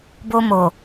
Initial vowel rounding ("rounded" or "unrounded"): rounded